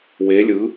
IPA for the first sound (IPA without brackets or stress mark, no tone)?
w